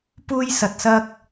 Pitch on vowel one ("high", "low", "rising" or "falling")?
high